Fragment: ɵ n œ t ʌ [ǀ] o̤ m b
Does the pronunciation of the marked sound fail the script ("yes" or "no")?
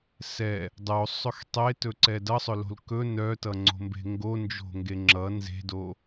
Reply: yes